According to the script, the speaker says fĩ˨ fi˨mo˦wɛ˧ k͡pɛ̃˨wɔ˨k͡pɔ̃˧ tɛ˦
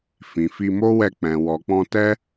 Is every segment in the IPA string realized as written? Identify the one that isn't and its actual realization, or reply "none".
i˨ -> i˧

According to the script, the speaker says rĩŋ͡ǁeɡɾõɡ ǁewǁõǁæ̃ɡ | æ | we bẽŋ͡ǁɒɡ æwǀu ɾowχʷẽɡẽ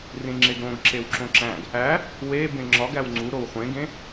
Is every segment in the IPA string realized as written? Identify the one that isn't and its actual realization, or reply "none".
ǀ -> ŋ͡ǀ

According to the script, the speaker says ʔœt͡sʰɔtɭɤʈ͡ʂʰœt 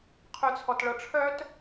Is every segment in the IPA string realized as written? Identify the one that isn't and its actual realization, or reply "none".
ʔ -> qʰ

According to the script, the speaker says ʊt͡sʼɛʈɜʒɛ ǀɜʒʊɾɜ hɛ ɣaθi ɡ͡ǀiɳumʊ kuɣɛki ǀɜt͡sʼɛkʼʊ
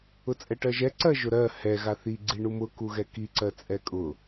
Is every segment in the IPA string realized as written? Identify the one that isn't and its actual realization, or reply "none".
none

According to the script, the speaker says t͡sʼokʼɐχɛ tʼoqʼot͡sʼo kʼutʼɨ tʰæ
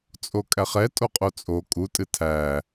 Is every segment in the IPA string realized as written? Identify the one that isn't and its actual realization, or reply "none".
ɐ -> æ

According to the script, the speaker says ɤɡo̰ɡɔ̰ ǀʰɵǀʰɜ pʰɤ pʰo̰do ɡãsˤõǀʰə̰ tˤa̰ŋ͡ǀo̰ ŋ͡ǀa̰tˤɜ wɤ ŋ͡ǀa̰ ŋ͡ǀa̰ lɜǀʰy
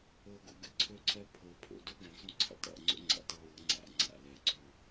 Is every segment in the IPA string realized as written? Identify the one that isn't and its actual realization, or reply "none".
ɔ̰ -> ə̰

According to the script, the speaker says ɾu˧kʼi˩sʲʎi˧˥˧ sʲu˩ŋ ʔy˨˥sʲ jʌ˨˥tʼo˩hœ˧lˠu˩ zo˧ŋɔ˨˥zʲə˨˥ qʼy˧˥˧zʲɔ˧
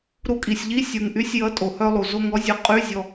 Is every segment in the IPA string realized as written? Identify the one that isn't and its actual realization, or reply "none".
ə˨˥ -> ʌ˨˥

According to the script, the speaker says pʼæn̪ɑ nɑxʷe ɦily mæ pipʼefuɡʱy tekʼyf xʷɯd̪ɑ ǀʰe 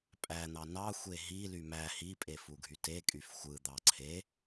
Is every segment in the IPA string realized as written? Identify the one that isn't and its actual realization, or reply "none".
p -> h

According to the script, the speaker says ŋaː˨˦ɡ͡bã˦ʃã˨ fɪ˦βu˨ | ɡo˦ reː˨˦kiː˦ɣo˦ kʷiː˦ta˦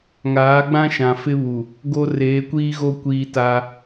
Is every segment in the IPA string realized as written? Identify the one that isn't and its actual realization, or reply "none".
k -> kʷ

